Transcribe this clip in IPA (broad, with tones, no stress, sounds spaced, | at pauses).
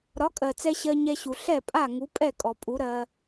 ɾ ɒ˩˥ kʼ ɜ˩ t͡s ɛ˧ ɕ ɜ˧ ɲ ɛ˧ ɕ u˩ ɬ ɛ˥˩ pʼ a˥˩ ŋ u˩˥ pʼ ɛ˥˩ kʼ ɔ˩ pʼ u˩˥ ɾ ɜ˧